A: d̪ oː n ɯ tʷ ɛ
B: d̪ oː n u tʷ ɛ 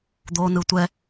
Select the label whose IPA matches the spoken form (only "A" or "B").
A